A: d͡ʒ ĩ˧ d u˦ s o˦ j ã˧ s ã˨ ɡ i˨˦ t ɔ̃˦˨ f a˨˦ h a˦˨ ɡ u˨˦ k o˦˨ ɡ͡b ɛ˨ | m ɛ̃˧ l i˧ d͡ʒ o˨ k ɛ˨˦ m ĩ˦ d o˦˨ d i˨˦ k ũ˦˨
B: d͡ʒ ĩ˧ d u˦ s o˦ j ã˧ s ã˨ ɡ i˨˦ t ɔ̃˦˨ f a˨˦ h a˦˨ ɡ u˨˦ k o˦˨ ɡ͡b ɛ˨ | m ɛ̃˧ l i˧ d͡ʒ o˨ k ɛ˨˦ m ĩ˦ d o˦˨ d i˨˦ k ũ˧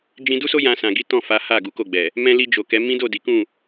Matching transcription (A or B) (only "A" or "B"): A